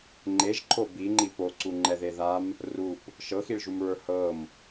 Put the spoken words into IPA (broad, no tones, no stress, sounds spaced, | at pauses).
ŋ͡ǃ e ʒ ǃʰ o b i ŋ͡ǃ i p o ǀ u ŋ͡ǃ ɛ ð e ð a m | r u p | ʃ ɤ x i ɭ ʒ u m ɹ ə˞ h ɤ m